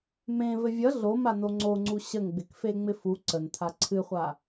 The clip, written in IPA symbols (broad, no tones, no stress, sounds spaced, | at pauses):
m ẽ v ɘ vʲ ʌ ɮ o m a n o ŋ͡ǀ o ŋ͡ǀ u ɕ ə ŋ ɡ͡b ɪ k f e ŋ͡m ɪ f u ǀ ə n t̪ʰ a ǀʰ ɨ χʷ a